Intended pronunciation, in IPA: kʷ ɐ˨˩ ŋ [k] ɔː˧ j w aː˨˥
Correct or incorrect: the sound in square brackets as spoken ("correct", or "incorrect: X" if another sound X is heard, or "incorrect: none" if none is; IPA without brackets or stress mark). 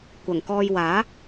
correct